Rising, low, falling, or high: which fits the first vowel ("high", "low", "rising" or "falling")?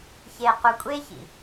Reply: low